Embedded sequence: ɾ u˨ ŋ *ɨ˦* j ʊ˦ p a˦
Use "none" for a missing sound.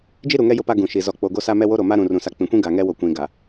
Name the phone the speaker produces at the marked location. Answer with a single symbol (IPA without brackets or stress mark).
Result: ɛ˦